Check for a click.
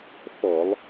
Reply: absent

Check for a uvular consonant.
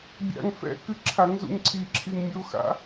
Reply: absent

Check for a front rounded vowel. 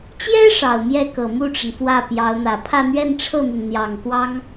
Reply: absent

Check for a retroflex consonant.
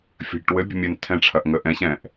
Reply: present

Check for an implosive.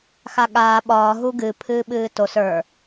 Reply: present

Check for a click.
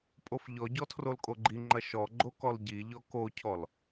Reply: present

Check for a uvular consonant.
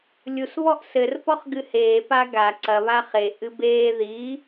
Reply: present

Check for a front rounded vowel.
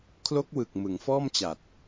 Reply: absent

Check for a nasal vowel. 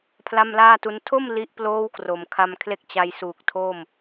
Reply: absent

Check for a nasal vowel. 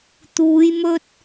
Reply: absent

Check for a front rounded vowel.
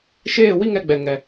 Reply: absent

